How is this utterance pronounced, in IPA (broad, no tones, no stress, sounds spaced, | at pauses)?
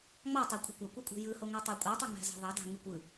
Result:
ŋ͡m ɑ tˤ æ kʷʼ e̤ kʷ ɑ kʷ ɯ kʷʼ e̤ j ɯ h o ŋ o tˤ ɑ kʷʼ ɑ tˤ ø ŋ͡m æ̤ z ɑ̤ ðˤ ɑ d ɑ̤ ŋ ɯ kʷ ɯ